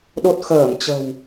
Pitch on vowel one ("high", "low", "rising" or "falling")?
low